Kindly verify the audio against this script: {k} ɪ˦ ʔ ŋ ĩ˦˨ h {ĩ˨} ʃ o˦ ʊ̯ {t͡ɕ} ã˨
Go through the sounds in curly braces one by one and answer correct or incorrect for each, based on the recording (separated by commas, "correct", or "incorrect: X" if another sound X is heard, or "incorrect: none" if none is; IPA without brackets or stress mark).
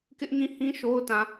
correct, incorrect: ĩ˦, incorrect: t